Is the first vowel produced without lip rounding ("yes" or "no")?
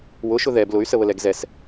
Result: no